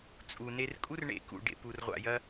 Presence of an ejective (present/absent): present